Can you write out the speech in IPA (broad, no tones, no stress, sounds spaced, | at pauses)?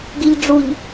ɡ i ʎ ɖ͡ʐ u ʎ